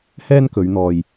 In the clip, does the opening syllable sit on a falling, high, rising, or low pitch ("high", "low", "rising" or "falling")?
high